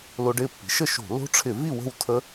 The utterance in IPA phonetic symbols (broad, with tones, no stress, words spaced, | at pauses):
lo˧ɖɪː˥˨pːi̤˩˥ ʃə˥˨ʃo̤˧˩˧ lo̤˦˥ʈ͡ʂʰɪ˧˩˧vi˥˨ wə̤˥˨w tʰə˦˥